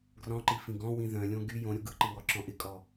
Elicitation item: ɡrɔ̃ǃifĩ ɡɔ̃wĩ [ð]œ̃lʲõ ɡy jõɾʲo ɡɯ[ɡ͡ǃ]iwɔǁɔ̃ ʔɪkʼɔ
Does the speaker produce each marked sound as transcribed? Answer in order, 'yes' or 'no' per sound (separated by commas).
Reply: yes, no